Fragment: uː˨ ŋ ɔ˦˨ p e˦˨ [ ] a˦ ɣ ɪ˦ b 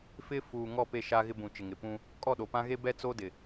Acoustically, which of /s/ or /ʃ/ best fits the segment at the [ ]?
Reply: ʃ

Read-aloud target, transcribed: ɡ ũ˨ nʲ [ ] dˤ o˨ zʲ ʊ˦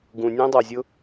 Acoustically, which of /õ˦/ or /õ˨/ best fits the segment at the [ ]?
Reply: õ˦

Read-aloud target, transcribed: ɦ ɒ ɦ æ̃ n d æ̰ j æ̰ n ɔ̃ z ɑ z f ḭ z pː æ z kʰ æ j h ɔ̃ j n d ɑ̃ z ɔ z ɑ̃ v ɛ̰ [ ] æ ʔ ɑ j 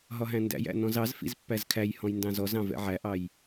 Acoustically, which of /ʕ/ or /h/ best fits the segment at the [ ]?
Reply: ʕ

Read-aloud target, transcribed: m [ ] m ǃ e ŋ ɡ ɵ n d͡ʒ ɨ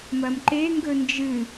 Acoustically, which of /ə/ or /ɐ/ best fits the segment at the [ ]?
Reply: ɐ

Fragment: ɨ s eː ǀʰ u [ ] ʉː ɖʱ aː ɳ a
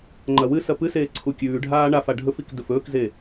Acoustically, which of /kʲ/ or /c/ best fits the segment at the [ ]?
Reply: kʲ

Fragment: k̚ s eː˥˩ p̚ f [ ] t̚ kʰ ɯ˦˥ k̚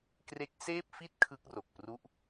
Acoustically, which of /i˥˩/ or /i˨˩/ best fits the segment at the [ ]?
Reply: i˥˩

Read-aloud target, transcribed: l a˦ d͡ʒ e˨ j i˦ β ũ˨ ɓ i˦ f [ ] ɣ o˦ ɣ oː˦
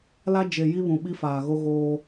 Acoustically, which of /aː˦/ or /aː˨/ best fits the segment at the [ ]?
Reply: aː˨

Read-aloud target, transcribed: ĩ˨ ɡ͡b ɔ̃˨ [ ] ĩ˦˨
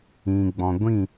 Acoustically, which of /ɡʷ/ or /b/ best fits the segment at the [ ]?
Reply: ɡʷ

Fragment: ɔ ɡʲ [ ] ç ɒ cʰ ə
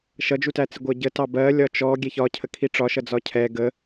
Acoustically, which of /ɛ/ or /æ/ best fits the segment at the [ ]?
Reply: ɛ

